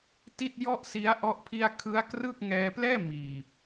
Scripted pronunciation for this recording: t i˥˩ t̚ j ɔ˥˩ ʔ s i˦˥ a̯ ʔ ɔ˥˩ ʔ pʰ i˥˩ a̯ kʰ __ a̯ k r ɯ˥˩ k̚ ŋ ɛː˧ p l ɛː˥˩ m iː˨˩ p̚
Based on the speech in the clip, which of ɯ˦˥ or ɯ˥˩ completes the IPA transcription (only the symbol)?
ɯ˦˥